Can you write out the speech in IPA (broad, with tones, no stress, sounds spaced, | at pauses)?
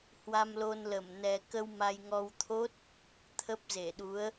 h w a˧ m l o˧ n l ə˧˩ m n ɛ˧ k ə˧ w m a˧ j ŋ ɔ˧ w t̪ʰ o˦˥ t̚ | t̪ʰ ə˦˥ p̚ z e˧˩ ɗ u˨˦ ə̯